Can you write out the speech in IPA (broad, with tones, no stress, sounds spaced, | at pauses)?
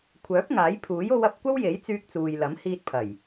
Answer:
kʷʰ œː˨˥ p̚ ŋ aː˨˥ j pʰ uː˨˥ j o˧ w ɐ˧ p̚ kʷ ɐ˥ w j e˨˥ j t͡s yː˧ k̚ t͡s uː˨ j l ɐ˨˥ m h iː˧ t̚ pʰ ɐ˨˩ j